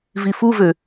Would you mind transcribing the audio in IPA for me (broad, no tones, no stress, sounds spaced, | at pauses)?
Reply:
v i f u v ø